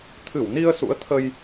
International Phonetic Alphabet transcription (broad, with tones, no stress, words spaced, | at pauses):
t̪ʰɨ˧˩wni˧ə̯sṵ˧˥ə̯t̪ʰə˧j